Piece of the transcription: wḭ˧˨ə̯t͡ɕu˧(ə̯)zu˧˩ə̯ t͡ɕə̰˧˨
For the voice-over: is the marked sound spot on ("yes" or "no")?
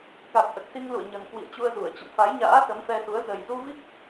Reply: yes